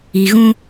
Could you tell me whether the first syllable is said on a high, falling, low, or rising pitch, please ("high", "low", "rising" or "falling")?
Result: low